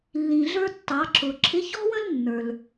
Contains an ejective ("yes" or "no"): no